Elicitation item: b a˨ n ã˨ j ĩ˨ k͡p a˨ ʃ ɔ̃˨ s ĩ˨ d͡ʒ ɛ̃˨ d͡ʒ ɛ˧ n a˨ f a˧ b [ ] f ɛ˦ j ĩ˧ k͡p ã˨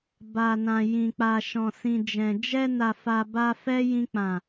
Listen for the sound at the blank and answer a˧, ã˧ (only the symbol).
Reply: a˧